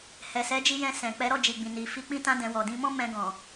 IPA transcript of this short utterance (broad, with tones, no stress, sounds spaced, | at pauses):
h ɛ˨ s ɛ˨˦ d͡ʒ i˧ j ɛ̃˧ s ɛ̃˨ k͡p ɛ˨˦ ɾ ɔ˦˨ d͡ʒ i˨ ɡ͡b ĩ˨ n i˨ f i˨˦ k͡p ĩ˧ t ã˧ d ɛ̃˨ w ɔ˨ d ĩ˧ m ɔ̃˦ m ɛ̃˧ ɡ ɔ̃˨